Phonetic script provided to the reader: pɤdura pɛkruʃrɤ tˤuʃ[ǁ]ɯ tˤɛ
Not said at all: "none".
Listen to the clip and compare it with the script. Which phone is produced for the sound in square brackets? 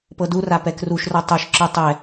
ǁ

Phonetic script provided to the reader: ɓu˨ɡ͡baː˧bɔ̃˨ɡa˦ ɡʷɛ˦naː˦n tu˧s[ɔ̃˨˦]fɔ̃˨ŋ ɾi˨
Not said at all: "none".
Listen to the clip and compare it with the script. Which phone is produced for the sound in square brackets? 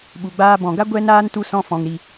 ɔ̃˧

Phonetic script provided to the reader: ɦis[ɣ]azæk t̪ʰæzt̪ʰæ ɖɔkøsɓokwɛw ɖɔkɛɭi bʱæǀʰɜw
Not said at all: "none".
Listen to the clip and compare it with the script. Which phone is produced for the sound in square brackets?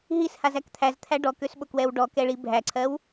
h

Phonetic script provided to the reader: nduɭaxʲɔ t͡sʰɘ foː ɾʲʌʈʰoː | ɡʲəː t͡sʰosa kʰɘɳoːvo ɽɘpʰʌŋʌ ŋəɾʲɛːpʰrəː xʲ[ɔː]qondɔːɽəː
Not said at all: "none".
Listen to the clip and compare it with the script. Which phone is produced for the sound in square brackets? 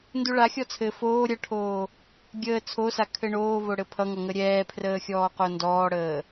ɔː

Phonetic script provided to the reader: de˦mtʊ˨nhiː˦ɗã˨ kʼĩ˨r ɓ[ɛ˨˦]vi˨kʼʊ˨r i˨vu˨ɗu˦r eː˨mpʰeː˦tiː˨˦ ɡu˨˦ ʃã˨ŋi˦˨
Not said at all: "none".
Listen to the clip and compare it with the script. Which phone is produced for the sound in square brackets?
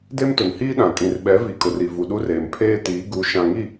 ɛ˨˦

